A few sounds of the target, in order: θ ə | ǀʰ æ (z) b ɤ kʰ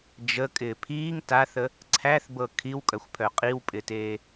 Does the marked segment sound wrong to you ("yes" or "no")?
yes